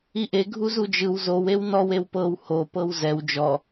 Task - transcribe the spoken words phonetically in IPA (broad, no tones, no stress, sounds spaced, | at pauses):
i ʔ e ɡʱ u z u d͡ʒ ɯ w z o w e w n ɔ w e w p ɤ w h o p ɤ w z ɛ w d͡ʒ ɔ